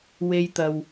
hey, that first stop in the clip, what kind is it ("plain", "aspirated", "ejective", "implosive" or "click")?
plain